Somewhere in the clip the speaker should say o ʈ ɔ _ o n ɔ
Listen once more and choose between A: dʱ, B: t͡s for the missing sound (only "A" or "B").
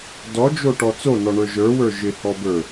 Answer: B